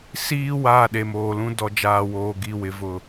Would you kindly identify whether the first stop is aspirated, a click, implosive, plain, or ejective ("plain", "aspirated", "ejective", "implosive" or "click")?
implosive